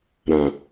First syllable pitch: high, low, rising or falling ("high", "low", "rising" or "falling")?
low